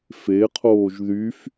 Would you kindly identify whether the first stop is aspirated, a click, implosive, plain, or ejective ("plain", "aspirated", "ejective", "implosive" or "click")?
aspirated